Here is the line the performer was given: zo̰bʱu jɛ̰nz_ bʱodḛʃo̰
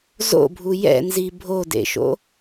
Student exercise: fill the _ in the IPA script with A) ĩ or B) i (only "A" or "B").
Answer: B